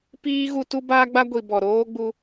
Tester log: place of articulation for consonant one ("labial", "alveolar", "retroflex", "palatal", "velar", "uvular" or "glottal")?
labial